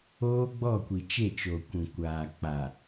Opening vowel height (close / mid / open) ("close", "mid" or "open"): mid